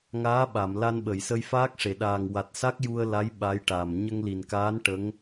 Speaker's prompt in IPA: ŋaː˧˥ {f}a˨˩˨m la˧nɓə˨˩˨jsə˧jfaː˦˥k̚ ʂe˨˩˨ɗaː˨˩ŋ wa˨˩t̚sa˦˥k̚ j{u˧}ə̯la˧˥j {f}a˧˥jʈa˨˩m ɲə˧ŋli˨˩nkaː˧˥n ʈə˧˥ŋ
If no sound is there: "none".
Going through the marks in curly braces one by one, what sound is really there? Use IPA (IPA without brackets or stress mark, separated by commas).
ɓ, u˧, ɓ